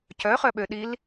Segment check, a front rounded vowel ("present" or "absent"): present